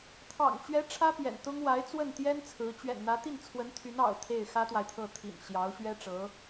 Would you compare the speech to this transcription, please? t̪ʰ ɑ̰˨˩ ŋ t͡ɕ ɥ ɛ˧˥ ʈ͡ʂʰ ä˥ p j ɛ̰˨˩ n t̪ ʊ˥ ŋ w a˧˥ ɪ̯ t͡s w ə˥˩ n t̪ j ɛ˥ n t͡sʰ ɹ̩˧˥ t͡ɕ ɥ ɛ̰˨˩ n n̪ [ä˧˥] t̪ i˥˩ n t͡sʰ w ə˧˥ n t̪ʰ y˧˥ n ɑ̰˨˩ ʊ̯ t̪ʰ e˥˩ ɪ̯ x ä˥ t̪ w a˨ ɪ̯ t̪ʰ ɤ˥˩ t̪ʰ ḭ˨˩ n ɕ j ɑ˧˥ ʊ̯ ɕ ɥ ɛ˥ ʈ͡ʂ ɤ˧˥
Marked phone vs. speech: correct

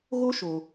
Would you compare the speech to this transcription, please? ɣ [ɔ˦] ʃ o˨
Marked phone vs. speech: incorrect: o˦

